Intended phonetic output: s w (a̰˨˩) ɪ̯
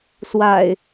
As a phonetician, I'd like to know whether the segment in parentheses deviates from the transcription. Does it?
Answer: no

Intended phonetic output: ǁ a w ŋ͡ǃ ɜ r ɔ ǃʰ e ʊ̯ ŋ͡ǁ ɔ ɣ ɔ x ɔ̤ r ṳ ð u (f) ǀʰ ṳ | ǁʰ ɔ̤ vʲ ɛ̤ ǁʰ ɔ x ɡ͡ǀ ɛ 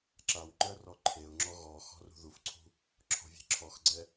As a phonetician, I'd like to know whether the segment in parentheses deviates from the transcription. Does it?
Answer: no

